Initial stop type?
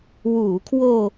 aspirated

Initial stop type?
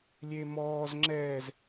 click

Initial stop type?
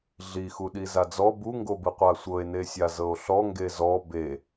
implosive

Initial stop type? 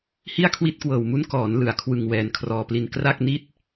aspirated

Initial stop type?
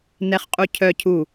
ejective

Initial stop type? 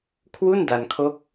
aspirated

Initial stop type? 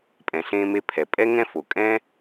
ejective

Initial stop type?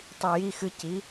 plain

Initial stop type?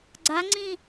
click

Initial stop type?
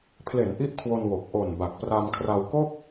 aspirated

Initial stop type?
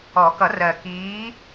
plain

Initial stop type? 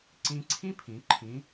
click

